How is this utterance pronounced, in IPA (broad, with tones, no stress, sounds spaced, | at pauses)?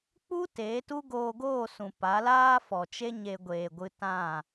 k͡p u˦ t eː˨˦ t u˦ ɡ oː˧ ɡ oː˦˨ s ũ˨ p a˨˦ l aː˦ f ɔ˨ t͡ʃ e˦ ɲ e˧ ɡʷ eː˨ ɡʷ ɨ˧ t ã˦˨